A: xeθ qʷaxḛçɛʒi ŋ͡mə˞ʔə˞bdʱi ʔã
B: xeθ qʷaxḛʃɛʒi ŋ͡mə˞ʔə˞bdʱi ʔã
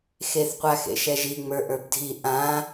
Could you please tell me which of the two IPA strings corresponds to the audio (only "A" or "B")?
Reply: B